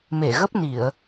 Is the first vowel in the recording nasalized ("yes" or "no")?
no